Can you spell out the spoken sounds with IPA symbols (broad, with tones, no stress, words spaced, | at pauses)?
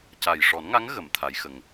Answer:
ca˨˩jʂɔ˨˩˦nŋa˧˥ŋ ɣə˨˩˦mt̪ʰa˧˥jxə˧ŋ